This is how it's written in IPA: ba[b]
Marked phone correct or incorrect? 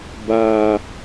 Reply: incorrect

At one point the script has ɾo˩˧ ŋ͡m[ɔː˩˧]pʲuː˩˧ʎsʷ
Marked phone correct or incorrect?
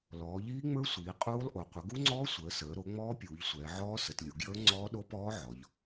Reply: incorrect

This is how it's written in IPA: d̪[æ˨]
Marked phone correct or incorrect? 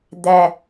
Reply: correct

